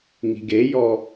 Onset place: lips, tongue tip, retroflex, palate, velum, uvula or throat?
velum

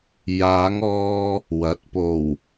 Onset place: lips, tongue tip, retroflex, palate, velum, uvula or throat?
palate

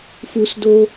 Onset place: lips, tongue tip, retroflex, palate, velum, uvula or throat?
lips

